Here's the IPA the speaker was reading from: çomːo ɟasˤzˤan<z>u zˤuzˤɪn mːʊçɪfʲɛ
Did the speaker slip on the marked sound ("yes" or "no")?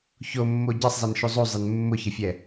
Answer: yes